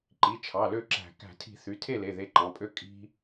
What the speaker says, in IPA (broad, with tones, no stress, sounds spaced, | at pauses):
ǃ i˩˧˩ t͡ʃʰ ɑ˩˧˩ l ø˥˩ ǁ æ̤˧˩˧ k æ̤˧˩˧ tʰ i̤˧˩˧ θ y˩˧˩ tʰ e˥˩ l e˩˧˩ ð e˨˦ ǃ ɑ̃˩˧˩ pʼ ø˦ kʼ i̤˦